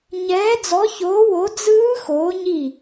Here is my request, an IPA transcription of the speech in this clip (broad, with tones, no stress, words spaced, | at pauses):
ɲɛː˨˦d͡zɔ˨˦çoː˨˦wo˨˦ d͡zɯː˦˥ xoː˨˦ɲi˦˨